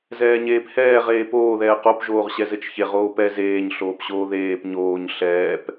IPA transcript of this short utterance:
z ɛː ɲ eː p h ɛː ʁ eː p oː ð ɛː q o p ʒ oː ʁ ɕ ɛ z ɘ t͡ʃ ç e ʁ oː p ɛ z eː ɲ ɬ oː p ɕ oː ð eː p ɲ oː ɲ ɬ ɛː p

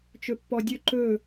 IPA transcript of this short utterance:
t͡ʃ ɵ pː ɔ dʲ ɵ ǃ ɵ

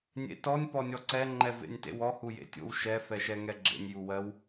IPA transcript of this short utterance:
nʲ ḛ t ɔ nʲ p ɔ nʲ ɔ ǀ ɛ ŋ͡ǃ ɛ v ḛ nʲ t ḛ w ɔ h u j ḛ tʲ o̰ w ʃ ɛ f ɛ ʃ ɛ ŋ ɛ ɡ͡ǁ ḛ nʲ j u w ɜ w

